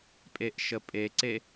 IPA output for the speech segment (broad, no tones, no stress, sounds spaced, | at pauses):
pʼ e ʔ ʃ ə pʼ e ǀ e